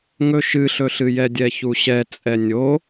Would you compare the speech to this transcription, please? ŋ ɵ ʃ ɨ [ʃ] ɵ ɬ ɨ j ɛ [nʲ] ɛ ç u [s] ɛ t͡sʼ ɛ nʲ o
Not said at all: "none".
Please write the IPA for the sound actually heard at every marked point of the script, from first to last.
ɬ, dʲ, ɕ

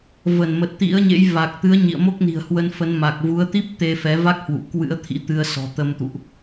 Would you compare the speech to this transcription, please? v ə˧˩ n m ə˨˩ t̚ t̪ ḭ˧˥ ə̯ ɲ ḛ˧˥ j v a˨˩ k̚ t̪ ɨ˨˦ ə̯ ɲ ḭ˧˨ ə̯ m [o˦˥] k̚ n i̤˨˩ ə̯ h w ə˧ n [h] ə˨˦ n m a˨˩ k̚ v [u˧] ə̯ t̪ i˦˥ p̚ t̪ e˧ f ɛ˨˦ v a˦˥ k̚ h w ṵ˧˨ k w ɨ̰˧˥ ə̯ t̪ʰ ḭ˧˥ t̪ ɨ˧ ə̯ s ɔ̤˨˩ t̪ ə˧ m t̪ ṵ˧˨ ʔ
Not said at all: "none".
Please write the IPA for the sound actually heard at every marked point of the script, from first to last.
o˦˥, f, u˨˦

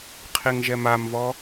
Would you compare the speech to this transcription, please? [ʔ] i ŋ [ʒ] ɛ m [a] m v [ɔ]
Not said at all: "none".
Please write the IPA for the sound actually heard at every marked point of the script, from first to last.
qʰ, ʒ, a, ɔ

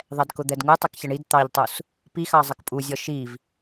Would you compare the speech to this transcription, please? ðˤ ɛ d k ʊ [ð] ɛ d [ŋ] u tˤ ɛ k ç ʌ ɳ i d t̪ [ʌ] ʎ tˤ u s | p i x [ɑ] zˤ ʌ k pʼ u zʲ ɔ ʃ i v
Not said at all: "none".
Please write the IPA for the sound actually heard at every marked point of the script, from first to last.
d̪, ŋ, ɑ, ɑ

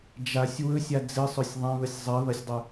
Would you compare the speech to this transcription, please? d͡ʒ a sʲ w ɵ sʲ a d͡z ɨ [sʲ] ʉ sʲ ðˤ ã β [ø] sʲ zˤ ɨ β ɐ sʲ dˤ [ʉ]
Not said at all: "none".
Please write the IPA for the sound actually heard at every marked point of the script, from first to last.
sˤ, ɵ, ʉ

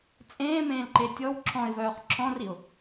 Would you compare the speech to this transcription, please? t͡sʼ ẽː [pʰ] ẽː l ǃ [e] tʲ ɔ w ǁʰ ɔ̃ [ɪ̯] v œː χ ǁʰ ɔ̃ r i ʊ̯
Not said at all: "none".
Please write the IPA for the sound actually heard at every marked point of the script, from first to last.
m, e, ɪ̯

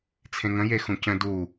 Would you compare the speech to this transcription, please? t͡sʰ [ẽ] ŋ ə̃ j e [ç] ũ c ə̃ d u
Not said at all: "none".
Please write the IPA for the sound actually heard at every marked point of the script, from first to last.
ẽ, x

